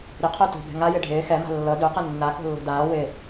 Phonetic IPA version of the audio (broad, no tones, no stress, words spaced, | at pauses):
ɾɪ qʰoto̤ bɛ̤ŋajɪ ɖʱɪː xɛma̤ lːɤ dœqə nːa ko̤lːo̤daː wɪ